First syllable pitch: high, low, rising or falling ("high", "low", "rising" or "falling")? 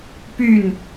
falling